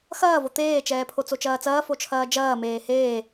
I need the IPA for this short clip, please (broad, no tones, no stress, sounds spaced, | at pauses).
x ɐː v o t̪ eː t͡ʃ ɛː pʰ o t͡s o t͡ʃ ɐː t͡s ɐː f o t͡ʃʰ ɐː d͡ʒ ɐː m eː h eː